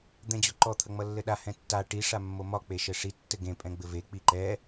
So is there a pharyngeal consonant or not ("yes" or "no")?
no